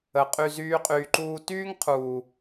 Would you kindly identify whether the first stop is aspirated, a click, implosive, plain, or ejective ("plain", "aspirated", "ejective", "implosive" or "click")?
ejective